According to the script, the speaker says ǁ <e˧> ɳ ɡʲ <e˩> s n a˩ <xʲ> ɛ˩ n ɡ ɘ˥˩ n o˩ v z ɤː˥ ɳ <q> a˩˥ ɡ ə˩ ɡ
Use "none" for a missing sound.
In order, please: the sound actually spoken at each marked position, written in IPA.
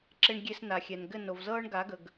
e˧, e˧, xʲ, ɡ

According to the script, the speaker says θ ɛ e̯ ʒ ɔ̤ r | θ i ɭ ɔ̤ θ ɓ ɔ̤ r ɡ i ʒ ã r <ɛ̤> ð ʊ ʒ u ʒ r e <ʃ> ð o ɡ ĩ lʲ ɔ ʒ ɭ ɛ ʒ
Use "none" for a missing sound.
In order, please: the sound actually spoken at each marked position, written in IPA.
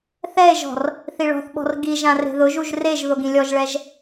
e̤, ʒ

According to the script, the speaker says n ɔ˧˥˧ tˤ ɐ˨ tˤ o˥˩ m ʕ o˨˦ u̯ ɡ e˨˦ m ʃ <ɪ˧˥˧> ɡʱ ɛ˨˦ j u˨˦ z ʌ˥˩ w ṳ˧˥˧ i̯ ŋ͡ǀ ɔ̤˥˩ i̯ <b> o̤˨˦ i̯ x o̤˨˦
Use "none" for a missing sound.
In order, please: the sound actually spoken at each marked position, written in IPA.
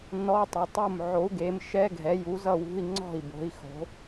ɛ˧˥˧, b

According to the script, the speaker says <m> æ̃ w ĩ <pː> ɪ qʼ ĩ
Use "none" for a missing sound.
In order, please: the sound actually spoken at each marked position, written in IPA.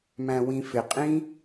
m, f

